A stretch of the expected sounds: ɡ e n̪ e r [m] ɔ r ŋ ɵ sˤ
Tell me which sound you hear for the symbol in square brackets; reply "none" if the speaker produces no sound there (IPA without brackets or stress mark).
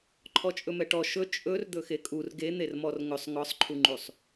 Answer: m